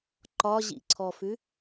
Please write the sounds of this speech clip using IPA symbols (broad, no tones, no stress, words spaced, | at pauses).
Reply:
ǃɒʑḭǀʰɔfʉ